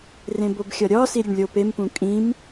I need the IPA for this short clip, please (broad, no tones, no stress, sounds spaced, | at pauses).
r ẽ b o b xʲ ɒ ɾʲ ɒ s i ɾʲ e ɳ lʲ o p e m p ũ kʼ ĩ m